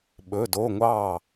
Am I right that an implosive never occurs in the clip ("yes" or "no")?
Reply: no